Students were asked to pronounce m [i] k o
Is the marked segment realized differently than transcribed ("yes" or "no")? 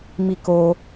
no